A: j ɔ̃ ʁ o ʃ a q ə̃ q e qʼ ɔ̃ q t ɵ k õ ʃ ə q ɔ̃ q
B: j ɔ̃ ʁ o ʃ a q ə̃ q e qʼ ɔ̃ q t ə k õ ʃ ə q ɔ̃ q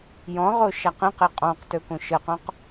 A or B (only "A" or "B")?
A